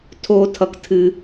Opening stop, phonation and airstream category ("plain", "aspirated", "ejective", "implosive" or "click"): aspirated